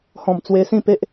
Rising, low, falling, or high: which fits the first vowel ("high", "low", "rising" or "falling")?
low